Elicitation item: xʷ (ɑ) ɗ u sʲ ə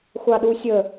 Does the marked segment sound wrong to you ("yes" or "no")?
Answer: no